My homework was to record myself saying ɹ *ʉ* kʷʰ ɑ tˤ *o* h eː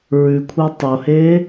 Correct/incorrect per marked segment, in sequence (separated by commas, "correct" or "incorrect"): correct, correct